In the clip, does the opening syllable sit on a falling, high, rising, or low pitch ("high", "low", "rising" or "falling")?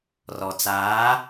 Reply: low